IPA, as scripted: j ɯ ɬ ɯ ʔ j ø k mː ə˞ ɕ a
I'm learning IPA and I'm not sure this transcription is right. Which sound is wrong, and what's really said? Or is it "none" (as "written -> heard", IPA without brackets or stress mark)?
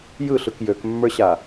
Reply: ʔ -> k